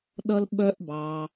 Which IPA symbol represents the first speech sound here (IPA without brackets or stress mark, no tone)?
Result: ɗ